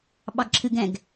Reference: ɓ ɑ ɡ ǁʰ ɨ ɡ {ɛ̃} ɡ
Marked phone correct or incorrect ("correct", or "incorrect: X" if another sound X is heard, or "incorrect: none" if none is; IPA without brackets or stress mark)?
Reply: correct